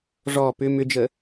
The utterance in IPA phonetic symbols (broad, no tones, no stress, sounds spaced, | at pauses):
ʐ ɔ p ʏ m ʏ d͡ʒ ə